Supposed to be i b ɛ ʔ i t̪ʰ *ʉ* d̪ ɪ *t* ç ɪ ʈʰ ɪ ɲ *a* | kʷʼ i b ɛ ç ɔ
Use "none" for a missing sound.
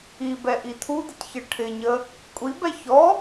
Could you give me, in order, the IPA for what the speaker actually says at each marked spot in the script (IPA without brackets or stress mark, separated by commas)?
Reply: u, t, ə